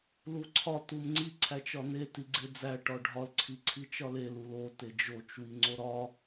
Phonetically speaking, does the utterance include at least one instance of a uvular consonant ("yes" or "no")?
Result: no